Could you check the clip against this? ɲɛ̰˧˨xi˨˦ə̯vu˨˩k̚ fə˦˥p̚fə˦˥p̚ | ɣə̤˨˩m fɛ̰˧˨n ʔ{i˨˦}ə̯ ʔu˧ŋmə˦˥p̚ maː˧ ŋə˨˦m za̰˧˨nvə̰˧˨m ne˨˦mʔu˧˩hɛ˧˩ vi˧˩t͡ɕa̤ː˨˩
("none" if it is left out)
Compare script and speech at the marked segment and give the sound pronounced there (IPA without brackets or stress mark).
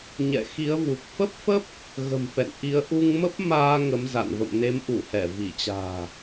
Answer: i˨˦